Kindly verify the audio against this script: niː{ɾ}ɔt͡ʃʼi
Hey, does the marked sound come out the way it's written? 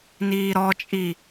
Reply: yes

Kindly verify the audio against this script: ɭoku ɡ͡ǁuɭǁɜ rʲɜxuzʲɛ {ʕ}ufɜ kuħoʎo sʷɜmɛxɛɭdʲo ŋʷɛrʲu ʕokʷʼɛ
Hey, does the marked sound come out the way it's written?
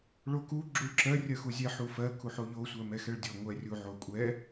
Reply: no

